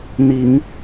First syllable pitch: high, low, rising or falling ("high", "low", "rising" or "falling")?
low